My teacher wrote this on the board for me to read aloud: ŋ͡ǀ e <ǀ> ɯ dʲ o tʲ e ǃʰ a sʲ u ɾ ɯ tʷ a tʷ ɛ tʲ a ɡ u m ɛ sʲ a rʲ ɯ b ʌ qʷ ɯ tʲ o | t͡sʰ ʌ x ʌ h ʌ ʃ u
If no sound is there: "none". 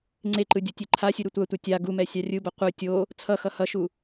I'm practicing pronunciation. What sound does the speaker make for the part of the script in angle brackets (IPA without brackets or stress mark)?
ǃ